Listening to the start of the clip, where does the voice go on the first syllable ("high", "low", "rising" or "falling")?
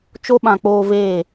high